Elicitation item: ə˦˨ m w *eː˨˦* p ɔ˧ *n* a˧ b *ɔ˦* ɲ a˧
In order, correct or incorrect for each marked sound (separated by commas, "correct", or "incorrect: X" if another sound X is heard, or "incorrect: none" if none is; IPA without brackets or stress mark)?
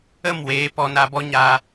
correct, correct, correct